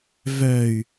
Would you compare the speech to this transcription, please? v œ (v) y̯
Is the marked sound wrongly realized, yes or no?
yes